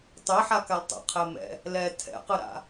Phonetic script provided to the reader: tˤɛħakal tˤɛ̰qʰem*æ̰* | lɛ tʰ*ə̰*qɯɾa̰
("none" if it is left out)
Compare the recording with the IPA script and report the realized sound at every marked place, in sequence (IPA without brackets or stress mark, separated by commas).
ɛ̰, ɛ̰